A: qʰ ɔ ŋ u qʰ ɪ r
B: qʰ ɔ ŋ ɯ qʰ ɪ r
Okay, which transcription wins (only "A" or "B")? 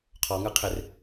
B